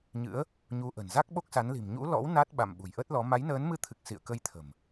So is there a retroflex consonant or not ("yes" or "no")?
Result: no